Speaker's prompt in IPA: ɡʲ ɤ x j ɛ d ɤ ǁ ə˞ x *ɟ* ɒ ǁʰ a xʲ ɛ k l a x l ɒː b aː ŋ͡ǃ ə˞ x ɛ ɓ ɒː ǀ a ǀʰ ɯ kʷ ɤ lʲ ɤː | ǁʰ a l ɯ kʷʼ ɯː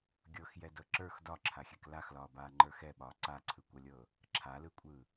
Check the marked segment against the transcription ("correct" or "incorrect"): incorrect